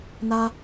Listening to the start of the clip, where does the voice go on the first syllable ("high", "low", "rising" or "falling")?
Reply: high